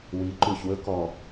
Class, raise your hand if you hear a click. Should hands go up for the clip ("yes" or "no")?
yes